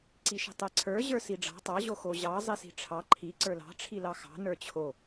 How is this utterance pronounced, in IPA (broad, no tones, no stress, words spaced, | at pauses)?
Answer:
ǀiʃi̤tˤɛǀʰə˞ ʑə˞siɖ͡ʐɑ̤ tˤɑ ʑoxoʑɑ zˤisi̤ʈ͡ʂʰɑ ǃʰi ǀə˞lɑ̤ ʈ͡ʂʰilɑxɑ̤ nə˞t͡ɕʰo